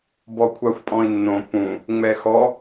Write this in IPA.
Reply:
b ɔ kʷʰ a xʷ pʼ ɔ̃ i̯ nː õ p ũ | ŋ͡m ɛ x ɔ

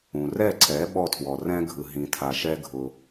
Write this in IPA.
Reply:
ũ˩ r ɛ˥˩ ǀʰ ɛ˩˥ ɓ ɔ˥˩ tʰ w ɔ˩ r ɛ̃˥ ɡʱ ɯ˩ ɦ ĩ˩ tʰ a˩ ʃ ɛ˧ ɡʱ ʊ˩

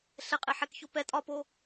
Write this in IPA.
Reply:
ɬ ɛ qʼ e ħ ɛ k ç o p ɛ tʼ ɒ p o

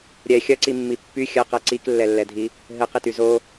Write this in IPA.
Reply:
ɾʲ ɛ xʲ ɐ ǀ i mː i pː y xʲ ɐ q ɛ ǀ i k lː ɛ lː ɛ dʱ i | ɦ ɘ q i t y z o

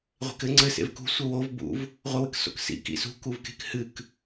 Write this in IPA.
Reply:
ʁʷ e̤ k ɘ ŋ͡ǀ ɘ s ḛ v k ṳ sʷ ɘ w o v b ṵ v | ʁʷ ɘ w ɨ k s o̰ k s ḭ k ḭ s ṳ k u v k e̤ k h ɨ k

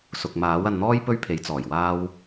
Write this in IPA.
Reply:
s ʊ˨ k̚ m aː˨˥ w ɐ˧ n n̪ ɔː˥ j p ɵ˥ ɥ pʰ e˨˥ j t͡s ɔː˨˩ j w aː˥ w

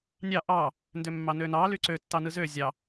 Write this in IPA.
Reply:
nʲ ɑ ʔ ɑ | n d ø mː ɑ n ø n ɑ l y ǀ ø tː ɑ n ɯ z ø zʲ ɑ

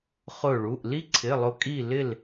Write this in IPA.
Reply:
χ ʊ˧˩ ɭ u˩˧˩ ʔ l i˥ ǀʰ ɪ˩˧˩ lˠ ʊ˧˩ kʼ i˧˩ l ɪ˧˩ l

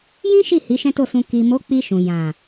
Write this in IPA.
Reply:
j ĩ˦ ʃ i˦˨ h i˨˦ ʃ ɛ̃˦ t o˦˨ s ũ˧ k i˨ m o˨˦ k͡p i˧ ʃ ũ˨ j ã˨

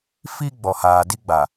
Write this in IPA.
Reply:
f i˦ ɡ͡b ɔ˨ h aː˨ d i˦ ɡ͡b a˨

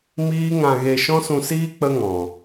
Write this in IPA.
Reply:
m iː˦ ŋ ã˧ ɣ e˧ ʃ ɔ̃˦ s ũ˧ s iː˦ k͡p ə˦ ŋ ɔ̃˨

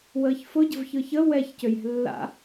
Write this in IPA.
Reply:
w əː ç f ʊ ɟ ə̤ v ç ɯ ç ə w ɛ ç c ø j ɛ̤ lː a̰

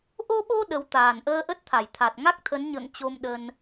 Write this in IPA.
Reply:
ʔ o˧ ɓ o˧ ɗ ə˨˦ w t̪ aː˨˩ n ʔ əː˧ ʔ ə˦˥ t̚ t̪ʰ a˧˩ j t̪ʰ a˨˩ t̚ ŋ a˦˥ k̚ t̪ʰ ə˨˦ n ɲ ə̰ː˧˨ ŋ t͡ɕ o˧ m ɗ ə˧ n

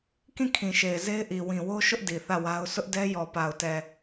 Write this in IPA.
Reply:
k ĩ˦˨ kʰ ĩ˨ ʃ e˨ ɪ̯ z e˦ ɪ̯ ʔ i˨ w ĩ˨ w o˦ ʃ ʊ˦ ʔ d i˨ θ ä˦˨ w a˦ ʊ̯ sʰ ʊ˦ ʔ d ɛ˦ j ɔ˨ p a˨ ʊ̯ t ɛ˨

